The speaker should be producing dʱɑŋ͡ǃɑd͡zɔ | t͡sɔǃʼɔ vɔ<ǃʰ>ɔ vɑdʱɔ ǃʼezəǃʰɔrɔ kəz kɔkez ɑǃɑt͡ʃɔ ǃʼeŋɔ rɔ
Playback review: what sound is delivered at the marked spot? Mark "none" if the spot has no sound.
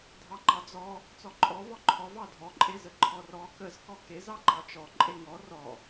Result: ǃʰ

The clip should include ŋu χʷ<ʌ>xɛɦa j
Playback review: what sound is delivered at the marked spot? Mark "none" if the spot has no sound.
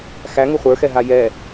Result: ə˞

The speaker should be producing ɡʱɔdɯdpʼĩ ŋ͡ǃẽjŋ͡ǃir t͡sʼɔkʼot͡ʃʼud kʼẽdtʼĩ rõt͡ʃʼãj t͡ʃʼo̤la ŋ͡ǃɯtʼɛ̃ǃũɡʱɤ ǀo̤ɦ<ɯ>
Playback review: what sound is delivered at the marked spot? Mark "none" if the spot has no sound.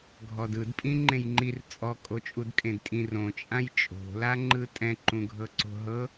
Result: ɤ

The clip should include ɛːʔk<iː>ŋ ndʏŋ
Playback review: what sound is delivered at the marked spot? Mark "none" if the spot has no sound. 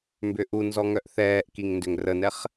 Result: i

